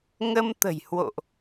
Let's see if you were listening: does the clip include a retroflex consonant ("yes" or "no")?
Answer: no